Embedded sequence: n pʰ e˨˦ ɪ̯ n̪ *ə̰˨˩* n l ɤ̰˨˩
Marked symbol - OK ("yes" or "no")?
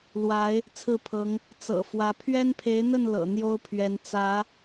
no